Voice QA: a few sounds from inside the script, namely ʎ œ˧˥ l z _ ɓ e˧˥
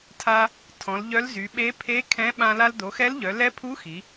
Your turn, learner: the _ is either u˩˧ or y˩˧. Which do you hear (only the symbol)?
y˩˧